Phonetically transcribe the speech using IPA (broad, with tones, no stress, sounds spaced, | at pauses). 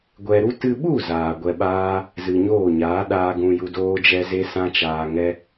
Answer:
ɡʷ ɛ˧ ɾ u˦ t ɨ˧ ɓ u˦˨ z aː˨ ɡʷ ɛ˧ ɓ aː˦ | z ɨ˨ ɲ oː˦˨ ɲ aː˨˦ ɗ aː˧ ɡ ũ˨ j u˨ d oː˦ d͡ʒ ɛ˦ z e˦ s ã˦ t͡ʃ aː˧ ŋ ɛ˦